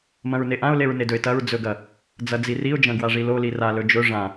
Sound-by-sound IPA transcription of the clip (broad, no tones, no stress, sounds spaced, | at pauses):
m ɐ̃ ɹ n e ʔ ã ʊ̯ l e ɹ n e d ɵ ɪ̯ t ɐ ɹ d͡z ɵ ɡ ɐ | d͡z ɐ d͡z i r i ʊ̯ d͡ʒ ɐ̃ ɡ w a ʐ i l o l i r a l ɵ d͡ʒ ɵ ʐ ã